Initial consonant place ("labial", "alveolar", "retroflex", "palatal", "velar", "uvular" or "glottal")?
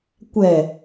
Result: velar